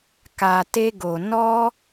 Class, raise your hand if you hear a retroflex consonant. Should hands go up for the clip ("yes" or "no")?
no